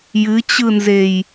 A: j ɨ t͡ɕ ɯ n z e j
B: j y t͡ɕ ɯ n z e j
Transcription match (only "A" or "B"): A